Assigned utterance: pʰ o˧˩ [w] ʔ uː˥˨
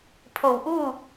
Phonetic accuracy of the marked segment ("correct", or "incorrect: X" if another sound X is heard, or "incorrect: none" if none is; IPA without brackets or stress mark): correct